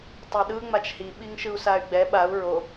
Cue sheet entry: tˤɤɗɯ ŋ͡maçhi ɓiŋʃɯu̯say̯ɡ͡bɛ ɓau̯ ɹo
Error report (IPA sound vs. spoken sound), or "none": ç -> t͡ʃ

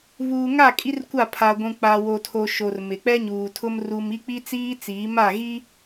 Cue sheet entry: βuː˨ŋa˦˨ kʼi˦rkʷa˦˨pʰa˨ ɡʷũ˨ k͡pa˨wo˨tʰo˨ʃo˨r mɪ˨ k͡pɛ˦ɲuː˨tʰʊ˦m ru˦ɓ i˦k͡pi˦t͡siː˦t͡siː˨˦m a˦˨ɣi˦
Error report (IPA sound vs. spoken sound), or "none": ɓ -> m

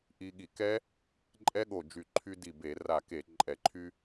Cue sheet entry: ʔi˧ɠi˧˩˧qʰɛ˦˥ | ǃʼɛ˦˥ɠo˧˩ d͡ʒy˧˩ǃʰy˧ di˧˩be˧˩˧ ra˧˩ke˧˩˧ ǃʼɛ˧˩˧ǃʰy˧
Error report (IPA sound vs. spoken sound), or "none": qʰ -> k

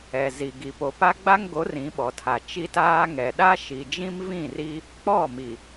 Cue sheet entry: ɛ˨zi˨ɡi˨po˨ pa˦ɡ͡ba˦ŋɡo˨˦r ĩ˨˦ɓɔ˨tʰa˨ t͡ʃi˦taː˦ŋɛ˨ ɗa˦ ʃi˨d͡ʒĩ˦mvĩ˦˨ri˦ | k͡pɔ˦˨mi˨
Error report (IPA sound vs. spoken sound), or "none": none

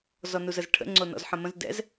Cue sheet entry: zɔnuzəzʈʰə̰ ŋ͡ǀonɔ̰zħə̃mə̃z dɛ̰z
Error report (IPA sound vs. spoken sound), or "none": none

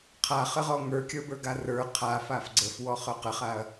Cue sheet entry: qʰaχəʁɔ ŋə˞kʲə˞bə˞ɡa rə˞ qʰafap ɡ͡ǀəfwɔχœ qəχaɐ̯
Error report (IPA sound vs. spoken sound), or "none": p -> f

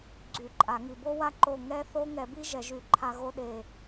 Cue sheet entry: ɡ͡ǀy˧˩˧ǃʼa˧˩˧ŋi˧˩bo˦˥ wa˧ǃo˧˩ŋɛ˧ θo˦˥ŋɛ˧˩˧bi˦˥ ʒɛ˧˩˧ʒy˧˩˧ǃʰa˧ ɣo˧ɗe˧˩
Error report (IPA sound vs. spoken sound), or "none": none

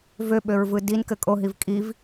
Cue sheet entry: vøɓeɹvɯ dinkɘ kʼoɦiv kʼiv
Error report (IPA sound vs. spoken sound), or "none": e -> ø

